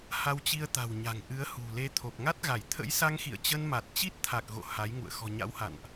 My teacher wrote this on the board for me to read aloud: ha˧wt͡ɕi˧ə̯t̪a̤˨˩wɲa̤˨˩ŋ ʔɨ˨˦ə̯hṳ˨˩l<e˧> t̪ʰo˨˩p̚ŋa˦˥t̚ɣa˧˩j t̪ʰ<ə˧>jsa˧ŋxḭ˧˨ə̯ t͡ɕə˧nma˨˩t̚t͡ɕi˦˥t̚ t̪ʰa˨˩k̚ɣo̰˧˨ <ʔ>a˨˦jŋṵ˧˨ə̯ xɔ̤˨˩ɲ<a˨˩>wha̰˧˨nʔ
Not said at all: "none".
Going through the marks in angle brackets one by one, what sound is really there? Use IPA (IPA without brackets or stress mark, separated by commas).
e˧, ə̰˧˥, h, a̰˧˥